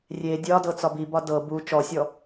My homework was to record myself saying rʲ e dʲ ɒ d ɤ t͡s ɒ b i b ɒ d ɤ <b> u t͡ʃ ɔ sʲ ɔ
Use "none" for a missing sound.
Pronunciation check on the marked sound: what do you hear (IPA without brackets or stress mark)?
b